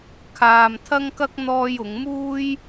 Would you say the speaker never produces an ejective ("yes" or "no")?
yes